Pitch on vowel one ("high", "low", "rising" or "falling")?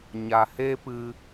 low